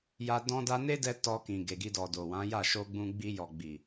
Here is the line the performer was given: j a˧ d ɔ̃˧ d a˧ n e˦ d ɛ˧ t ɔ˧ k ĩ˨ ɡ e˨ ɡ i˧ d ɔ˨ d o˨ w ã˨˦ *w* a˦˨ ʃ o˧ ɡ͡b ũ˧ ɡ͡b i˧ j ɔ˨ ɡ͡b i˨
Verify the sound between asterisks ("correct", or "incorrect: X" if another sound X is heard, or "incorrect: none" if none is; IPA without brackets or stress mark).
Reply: incorrect: j